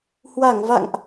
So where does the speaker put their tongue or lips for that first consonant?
throat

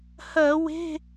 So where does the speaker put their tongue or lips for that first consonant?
throat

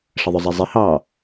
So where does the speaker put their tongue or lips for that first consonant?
retroflex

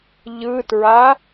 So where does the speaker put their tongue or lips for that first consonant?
palate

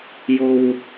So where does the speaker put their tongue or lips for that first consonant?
palate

